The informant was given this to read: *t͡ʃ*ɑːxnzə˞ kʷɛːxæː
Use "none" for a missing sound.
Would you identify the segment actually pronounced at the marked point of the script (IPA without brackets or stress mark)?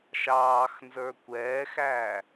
ʃ